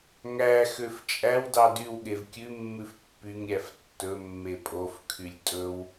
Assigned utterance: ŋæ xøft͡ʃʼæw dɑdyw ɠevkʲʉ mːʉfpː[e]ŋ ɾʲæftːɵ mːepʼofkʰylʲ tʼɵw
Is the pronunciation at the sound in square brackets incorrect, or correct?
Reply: incorrect